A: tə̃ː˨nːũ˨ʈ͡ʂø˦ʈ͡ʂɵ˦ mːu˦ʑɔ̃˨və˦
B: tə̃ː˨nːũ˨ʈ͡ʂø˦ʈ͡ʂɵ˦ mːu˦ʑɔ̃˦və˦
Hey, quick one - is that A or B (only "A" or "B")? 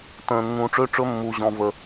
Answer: B